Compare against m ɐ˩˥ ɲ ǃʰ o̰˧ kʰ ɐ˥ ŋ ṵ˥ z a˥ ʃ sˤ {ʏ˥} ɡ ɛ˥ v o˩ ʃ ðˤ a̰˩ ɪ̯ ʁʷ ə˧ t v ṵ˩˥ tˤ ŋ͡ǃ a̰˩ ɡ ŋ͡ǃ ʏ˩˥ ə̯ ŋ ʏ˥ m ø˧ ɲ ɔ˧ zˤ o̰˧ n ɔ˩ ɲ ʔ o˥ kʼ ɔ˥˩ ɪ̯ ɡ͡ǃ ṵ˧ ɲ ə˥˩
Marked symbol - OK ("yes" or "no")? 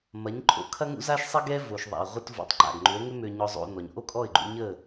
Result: no